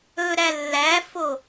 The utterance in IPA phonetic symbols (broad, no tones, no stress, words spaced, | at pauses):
ɵɾæ lːæfo